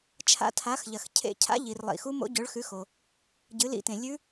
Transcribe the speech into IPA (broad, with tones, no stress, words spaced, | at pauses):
t͡ʃʰa̰˧˥tʰa˩˥xʎɐ˩x cʰḛ˧˥ cʰa̰˧˥ʎi˩r lˠḭ˩xu˧˥ mo̰˧˥ɟɵ˩˥ɭxʉ˩˥xo˩ | ɟɨ˩˥lḭ˧˥tẽ˩ lʲʉ˧˥